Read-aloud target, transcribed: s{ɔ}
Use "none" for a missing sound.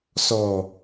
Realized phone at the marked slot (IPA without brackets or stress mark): ɔ